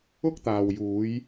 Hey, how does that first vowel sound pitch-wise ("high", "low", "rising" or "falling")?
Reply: high